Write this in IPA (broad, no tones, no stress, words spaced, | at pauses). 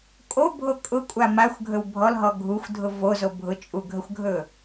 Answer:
kʼo bʱokʼʊkʷʼa maxʷɡʱɵw bʱɔlɦɔ ɡʱuxʷdʱʊ vozo bʱʊt͡ʃʼuɡʱəxʷɡʱɵ